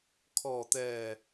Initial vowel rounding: rounded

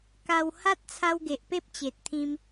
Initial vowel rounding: unrounded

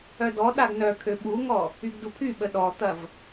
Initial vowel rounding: rounded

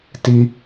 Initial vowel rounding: unrounded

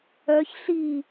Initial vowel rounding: rounded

